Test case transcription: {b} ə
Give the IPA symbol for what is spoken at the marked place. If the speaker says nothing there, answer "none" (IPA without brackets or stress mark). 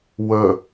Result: w